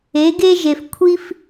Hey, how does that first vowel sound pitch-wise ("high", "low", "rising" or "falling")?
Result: rising